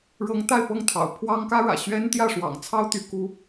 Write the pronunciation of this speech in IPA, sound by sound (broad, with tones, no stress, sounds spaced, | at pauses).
ɻ ɤ˧˥ ŋ t̪ a˥˧ ɪ̯ p ɤ˥˩ ŋ t̪ʰ ɑ̰˨˩ ʊ̯ pʰ w ɑ˥ ŋ k ä˥ ɻ ä̰˨˩ ɕ ɥ ɛ˥ n t̪ j ä˥˩ ʂ w ɑ̰˨˩ ŋ t͡sʰ ɑ˥ ʊ̯ t̪ y˧˥ k u˥